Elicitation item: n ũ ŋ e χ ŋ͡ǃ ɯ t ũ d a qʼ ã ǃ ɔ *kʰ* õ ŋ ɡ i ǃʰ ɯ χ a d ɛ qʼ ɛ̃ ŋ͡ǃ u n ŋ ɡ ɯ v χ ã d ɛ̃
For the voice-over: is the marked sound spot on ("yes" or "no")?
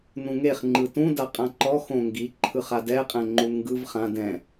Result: no